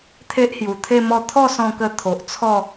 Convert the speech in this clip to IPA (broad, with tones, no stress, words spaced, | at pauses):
t̪ʰe˦ʔhju˨˩t̪ʰe˥˧mɔ˥˧ t̪ʰɔ˥˧sɔ̃˧kə˧ t̪ʰo˨ʔt͡sʰɔ˥˧